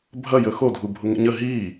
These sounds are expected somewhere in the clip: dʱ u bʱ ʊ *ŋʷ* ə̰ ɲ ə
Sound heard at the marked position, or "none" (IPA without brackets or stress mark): ŋ